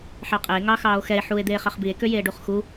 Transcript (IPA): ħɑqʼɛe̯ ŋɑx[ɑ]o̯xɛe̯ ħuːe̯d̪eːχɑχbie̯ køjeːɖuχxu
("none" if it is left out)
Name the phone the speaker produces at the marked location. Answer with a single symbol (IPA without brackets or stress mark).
ɑː